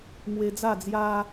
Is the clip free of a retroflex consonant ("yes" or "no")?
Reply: yes